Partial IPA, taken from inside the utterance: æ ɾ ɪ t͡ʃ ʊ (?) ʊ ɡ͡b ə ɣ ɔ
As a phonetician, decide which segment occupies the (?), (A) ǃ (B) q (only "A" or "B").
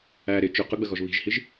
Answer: B